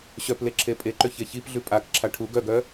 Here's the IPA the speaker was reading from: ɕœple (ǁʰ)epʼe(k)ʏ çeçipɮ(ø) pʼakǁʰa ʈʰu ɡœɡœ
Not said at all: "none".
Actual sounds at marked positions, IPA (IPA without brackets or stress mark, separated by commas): ǁʰ, ǃ, ʉ